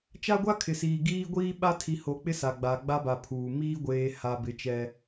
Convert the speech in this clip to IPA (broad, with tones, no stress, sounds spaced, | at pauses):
t͡ʃ a˦ ɡʷ a˦ kʰ ɪ˨ s iː˨ ɡ iː˦ ɡʷ iː˦ ɓ a˦ tʰ i˨ h o˨ k͡p ɪ˦ s a˨ ɡ͡b a˨ ɡ͡b a˦ b a˨ pʰ uː˨ m iː˦ ɡʷ eː˨ h a˨ b ɪ˨˦ t͡ʃ ɛ˦